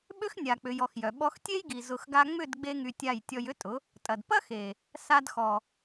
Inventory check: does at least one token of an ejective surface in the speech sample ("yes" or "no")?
yes